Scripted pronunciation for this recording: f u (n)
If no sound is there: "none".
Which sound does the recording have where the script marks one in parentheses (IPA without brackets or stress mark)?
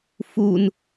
n